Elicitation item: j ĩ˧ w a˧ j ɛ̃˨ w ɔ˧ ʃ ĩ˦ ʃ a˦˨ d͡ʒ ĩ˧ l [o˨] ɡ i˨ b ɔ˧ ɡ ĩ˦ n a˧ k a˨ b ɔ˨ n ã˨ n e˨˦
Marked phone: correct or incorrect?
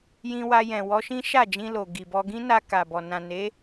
correct